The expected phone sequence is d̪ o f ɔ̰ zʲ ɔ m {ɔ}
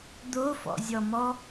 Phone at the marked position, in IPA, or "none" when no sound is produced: ɔ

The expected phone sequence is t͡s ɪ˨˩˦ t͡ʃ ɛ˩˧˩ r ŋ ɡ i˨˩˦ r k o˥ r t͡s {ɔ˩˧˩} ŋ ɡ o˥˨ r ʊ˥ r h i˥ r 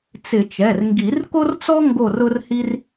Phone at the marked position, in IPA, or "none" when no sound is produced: ɔ˥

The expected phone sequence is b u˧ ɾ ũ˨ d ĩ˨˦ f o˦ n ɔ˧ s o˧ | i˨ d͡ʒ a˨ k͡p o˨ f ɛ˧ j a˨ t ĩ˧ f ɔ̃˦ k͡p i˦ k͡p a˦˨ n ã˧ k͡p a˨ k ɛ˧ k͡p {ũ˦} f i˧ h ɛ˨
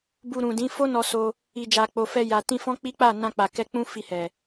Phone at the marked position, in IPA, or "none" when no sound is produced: ũ˦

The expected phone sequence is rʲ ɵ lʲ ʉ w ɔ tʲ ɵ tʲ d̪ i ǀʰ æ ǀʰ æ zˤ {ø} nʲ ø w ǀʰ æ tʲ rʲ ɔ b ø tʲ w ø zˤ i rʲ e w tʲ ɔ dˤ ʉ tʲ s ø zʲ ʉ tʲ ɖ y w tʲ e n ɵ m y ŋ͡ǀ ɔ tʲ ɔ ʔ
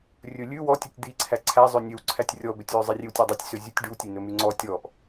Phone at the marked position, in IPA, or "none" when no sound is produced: ø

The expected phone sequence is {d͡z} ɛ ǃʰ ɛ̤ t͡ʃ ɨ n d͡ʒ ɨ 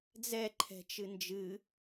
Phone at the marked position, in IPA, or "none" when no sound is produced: d͡z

